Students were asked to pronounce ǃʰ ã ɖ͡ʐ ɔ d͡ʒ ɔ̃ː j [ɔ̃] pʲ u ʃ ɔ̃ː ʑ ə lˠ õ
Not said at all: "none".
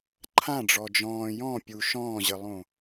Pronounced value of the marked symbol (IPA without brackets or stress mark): ɔ̃